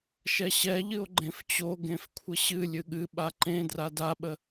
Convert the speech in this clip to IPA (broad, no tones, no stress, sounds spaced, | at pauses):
ʃ ɛ ɕ ɛ ʎ ɨ o̯ ɡ͡ǃ ẽ f t͡ɕ o ɡ ẽ f kʷʰ ə ɕ ɨ lʲ ɨ ɠ ɨ ɓ a ǃ ẽ d r a d a ɓ ə